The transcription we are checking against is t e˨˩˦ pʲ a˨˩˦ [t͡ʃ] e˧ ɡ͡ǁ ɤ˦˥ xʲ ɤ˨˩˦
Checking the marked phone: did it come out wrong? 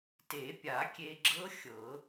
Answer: yes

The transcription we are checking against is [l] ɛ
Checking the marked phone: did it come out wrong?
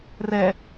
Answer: yes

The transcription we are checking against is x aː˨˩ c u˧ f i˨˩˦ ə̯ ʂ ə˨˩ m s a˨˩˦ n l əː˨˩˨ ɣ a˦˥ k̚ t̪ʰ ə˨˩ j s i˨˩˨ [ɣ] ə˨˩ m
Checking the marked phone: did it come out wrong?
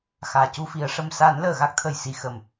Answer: yes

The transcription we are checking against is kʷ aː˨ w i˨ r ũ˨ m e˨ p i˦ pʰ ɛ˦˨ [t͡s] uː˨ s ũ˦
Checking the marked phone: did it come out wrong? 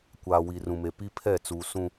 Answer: no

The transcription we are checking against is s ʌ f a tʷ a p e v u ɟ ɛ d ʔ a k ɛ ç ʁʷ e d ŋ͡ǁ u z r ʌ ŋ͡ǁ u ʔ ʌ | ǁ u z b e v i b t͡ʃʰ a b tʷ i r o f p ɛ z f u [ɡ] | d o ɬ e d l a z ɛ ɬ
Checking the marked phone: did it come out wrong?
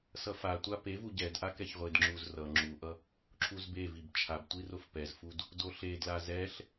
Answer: yes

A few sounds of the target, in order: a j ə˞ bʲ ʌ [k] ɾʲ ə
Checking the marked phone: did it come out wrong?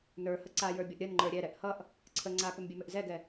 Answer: yes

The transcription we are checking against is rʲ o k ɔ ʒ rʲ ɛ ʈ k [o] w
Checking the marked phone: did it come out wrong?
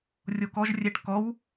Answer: yes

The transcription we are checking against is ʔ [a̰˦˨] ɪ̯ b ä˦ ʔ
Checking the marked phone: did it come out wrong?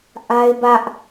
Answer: yes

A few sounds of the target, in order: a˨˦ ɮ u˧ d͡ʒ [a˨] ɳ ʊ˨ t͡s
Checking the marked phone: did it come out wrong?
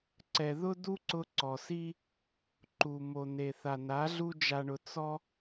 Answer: no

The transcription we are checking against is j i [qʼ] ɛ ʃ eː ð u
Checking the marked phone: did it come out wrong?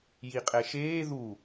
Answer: no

